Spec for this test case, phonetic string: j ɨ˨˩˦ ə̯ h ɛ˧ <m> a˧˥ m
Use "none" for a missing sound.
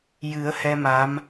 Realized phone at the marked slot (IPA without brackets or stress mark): m